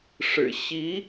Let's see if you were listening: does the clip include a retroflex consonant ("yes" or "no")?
yes